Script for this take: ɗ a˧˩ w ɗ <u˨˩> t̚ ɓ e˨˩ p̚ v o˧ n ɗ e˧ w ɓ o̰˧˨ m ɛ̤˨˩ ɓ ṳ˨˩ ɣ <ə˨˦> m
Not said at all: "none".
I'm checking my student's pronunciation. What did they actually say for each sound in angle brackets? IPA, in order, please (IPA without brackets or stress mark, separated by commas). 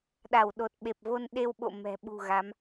o˨˩, a˨˦